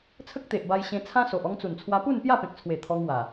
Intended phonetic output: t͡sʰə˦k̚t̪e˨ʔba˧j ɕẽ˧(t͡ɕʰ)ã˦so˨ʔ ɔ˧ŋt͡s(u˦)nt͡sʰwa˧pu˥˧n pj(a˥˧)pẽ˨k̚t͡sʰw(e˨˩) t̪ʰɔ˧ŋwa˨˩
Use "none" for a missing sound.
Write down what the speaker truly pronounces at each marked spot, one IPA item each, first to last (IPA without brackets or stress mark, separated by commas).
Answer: t͡sʰ, u˨˩, a˥˧, e˨˩